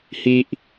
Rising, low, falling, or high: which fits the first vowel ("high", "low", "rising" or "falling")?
high